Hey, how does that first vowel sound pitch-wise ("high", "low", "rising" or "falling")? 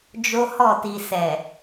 high